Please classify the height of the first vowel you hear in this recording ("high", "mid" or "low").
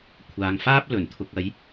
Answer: low